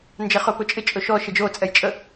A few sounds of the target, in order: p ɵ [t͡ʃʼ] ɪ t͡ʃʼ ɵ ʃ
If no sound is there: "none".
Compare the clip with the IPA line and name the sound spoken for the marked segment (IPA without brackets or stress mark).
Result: t͡ʃʼ